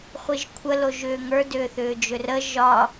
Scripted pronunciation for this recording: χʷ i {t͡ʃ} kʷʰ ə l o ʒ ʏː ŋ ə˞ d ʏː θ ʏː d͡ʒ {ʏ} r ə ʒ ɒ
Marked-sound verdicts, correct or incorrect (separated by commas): incorrect, correct